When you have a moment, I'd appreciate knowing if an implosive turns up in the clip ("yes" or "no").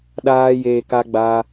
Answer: yes